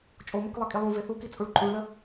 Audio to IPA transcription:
t͡ʃʼ o m o k lˠ ɘ kʼ i lˠ õ v e θ u k i t͡sʼ u ɭ ǃʼ ũ ɭ l ə

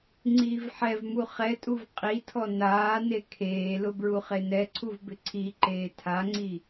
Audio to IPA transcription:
ŋ͡ǀ iː v ħ ɛ v m u χ ɛ tʼ u v qʼ i tʰ ɔ n aː n e kʰ eː l ʊ b ɹ u χ e n ɛ ǀʰ u v b ɪ ǀʰ i ǃ eː tʰ a ŋ͡ǀ i

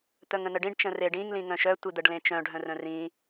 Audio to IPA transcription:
t̪ œ ŋ ə̃ n ə ɖ ĩ ɖ t͡ʃ ə̃ r e ɖ ĩ ŋ l ĩ ŋ œ̃ ʃ œ tʷ i d̪ ə ɖ l ẽ t͡ʃ œ̃ ɖʱ œ̃ r œ̃ r ĩ

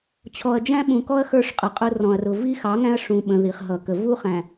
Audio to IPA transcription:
t͡ɕʰ ɔ˨ ɐ̯ d͡ʒ æ̃˦ ɓ ũ˨ k ɔ˦ ɐ̯ x ə˞˦ ʂ qʼ ʌ˨ qʼ ʊ˦ r ɔ̃˨ ɐ̯ r ʊ˨ v i˦ x ɑ˨˦ ŋ æ̃˦ ɐ̯ ʂ ũ˨ ɓ ə̃˨ ð i˨ χ ɦ ʌ˨ k ə˨ v u˦ χ æ̃˨

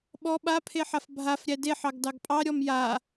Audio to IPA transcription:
ɓ ɔ ɓ a pʰ e ħ a f bʱ a f ɾʲ æ d e ħ ɑ ɡ d ɑ ɡ pʼ ɑ ɾʲ ɔ m j a

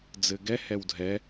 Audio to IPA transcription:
d͡z ɘ ɡ ɛ h ɛ w dʱ ɛ

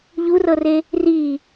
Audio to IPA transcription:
ʎ u r ɤ r e | r i

